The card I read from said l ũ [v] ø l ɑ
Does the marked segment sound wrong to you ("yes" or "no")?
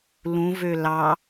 no